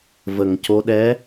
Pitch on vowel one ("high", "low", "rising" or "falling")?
low